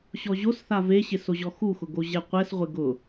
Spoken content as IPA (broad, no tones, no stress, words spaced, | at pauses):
ɕɔʑosθa veɕɪsoʑɔ xuxʊɡo ʑɛqʷɛsʁʷɪ ɡʊ